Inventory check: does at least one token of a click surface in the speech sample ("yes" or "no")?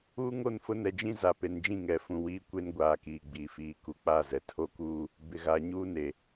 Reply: no